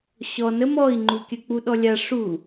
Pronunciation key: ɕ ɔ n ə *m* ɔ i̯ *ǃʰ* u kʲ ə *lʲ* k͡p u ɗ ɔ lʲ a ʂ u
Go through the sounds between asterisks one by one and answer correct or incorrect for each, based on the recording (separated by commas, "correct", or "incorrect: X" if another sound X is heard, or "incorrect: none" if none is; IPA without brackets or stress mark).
correct, incorrect: ŋ͡ǃ, incorrect: none